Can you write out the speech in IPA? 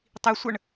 tˤisʷəɳ

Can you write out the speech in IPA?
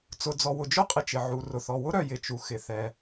t͡sʊ˩d͡zɔ˩wʊ˩d͡ʒʊ˥ qʼɪ˩ t͡ʃɪ˩ʕu˩ rʊ˩θɔ˩wʊ˥ ɾœ˩jɪ˩ t͡ʃu˩xɪ˩θɛ˩

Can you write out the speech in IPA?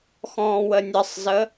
xɔ̃ːwənʲəsˤzə

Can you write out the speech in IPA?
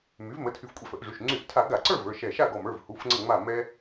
my˩˥vmə˩˧˩tʰy˧˩fkʷʼɛ˧˩f ə˧˩˧ʔʐy˩˧˩ʃ ŋ͡ǀy˧˩˧ʔtʰa˧˩˧ ɡa˧˩˧ǀə˞˥˨ və˞˩˧˩ʃɛ˧˩ ʃa˥˨ɡɔ˧˩mə˞˩˧˩v hu˩˧˩fŋ͡ǀə˧˩ŋ͡ma˧˩ mɛ˧

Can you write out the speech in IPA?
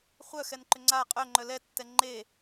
χʷœxɛnǃʏ ŋ͡ǀa qʼœŋ͡ǃœ lɛtːɛ ŋ͡ǃe

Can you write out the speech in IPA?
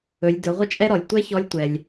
ɵ˩˧lʲdɵ˩˧ ʁʷə˥t͡ʃʼɛ˥ɾɔ˩lʲ tʷɛ˥çɔ˧˥lʲtʷɛ˩lʲ

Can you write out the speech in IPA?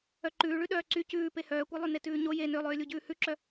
œǃʉːɭʉ ɗœːǀy cʉːpe hœːkʷœlˠy netʉːɲo je nølˠøːlʲu ɟʉːhʉǁœ

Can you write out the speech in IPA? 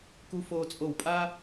ku˧ foː˧t͡sʼo˧˩wpʼaː˥

